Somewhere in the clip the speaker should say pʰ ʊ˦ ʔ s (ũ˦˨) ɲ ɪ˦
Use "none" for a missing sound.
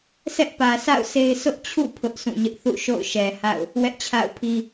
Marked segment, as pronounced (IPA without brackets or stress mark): ũ˦˨